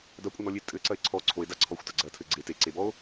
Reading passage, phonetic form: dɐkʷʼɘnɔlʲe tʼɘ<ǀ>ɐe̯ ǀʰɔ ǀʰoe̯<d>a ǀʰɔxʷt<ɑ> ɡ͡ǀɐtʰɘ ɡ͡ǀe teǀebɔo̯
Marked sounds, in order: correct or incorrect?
correct, correct, incorrect: ɐ

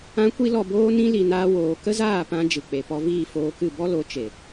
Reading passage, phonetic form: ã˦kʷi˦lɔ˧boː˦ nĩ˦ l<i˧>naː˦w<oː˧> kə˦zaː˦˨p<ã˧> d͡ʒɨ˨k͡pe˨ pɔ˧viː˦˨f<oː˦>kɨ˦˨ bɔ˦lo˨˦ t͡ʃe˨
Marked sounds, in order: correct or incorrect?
correct, correct, correct, incorrect: oː˧

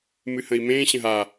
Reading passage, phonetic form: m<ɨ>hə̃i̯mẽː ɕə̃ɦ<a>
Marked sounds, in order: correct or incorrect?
correct, correct

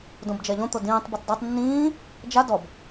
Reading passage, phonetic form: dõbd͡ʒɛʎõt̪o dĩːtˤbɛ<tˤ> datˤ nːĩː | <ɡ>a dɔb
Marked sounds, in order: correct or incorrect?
correct, incorrect: d͡ʒ

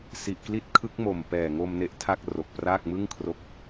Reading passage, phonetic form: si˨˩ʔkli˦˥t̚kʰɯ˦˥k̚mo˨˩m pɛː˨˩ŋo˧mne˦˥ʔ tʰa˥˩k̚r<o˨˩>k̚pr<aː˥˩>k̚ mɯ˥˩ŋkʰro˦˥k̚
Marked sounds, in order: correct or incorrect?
correct, correct

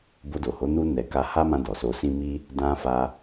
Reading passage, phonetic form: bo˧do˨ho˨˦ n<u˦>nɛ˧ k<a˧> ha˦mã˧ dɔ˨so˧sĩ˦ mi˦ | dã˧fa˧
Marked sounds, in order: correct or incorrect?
correct, correct

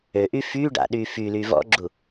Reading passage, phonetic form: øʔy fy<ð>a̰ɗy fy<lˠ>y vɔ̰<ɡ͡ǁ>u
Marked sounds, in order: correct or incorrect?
incorrect: ɖ, incorrect: l, correct

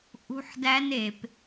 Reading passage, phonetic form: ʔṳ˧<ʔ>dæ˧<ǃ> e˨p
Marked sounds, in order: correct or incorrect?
incorrect: ħ, incorrect: n

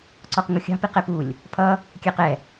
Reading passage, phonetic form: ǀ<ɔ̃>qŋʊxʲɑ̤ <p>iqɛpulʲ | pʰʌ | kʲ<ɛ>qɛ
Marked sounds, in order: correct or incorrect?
incorrect: ɔ, correct, correct

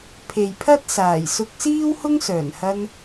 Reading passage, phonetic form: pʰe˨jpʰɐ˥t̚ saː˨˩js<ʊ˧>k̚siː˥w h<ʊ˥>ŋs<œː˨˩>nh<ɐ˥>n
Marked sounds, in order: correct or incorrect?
correct, correct, correct, incorrect: ɐ˧

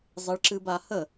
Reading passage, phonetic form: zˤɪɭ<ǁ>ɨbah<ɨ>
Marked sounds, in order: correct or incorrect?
correct, incorrect: ə

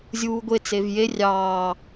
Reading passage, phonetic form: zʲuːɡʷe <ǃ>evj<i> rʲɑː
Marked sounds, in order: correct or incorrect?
incorrect: t͡s, incorrect: e

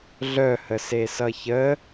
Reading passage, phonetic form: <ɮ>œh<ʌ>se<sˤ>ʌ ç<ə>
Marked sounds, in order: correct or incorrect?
correct, incorrect: ə, incorrect: s, correct

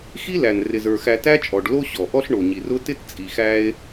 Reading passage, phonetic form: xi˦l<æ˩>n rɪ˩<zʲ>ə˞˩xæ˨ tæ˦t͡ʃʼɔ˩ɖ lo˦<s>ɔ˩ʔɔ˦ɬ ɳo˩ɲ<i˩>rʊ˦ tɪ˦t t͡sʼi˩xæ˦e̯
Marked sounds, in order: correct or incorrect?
correct, incorrect: z, incorrect: ɕ, correct

